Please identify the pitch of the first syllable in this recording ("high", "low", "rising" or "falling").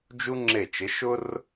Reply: high